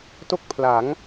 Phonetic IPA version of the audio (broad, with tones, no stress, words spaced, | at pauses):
to˥˩k̚pʰla˩˦ŋ